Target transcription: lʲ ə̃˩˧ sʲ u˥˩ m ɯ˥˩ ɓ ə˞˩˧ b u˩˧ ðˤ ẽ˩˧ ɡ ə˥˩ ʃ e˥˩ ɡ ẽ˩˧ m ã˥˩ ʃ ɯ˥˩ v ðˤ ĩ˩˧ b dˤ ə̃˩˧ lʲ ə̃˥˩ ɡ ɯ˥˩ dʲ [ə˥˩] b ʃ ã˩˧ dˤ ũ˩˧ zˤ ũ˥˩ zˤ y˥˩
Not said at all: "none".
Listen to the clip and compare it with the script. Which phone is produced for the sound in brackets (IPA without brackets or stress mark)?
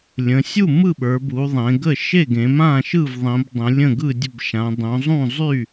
ə˥˩